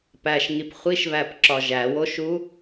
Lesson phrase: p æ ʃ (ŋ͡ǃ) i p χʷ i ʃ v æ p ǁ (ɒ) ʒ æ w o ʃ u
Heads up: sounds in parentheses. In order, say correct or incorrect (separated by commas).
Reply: incorrect, correct